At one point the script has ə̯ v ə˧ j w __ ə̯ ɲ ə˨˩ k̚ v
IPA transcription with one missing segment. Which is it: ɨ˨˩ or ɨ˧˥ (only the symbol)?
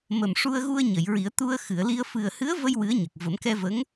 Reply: ɨ˧˥